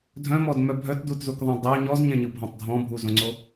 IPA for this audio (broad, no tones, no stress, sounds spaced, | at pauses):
dʱ œ̃ m ɔ d m œ bʱ œ t d u t z u k ðˤ ɛ̃ dˤ œ ɲ ɔ z ɲ ɛ̃ ɲ ɯ bʱ ɔ̃ tˤ dʱ ɔ̃ bʱ u z õ ŋ͡ǀ o